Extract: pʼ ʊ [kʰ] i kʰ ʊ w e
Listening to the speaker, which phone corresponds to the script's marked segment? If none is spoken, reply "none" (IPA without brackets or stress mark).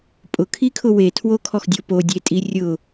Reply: kʰ